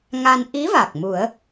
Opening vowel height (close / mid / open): open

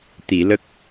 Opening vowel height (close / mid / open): close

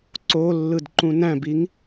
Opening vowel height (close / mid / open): mid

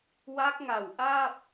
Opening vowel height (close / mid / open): open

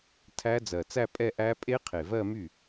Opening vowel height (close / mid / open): open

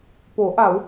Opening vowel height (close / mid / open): mid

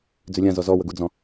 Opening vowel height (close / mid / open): close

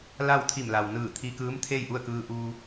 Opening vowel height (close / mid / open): open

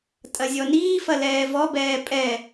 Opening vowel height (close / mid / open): open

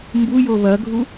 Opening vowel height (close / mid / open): close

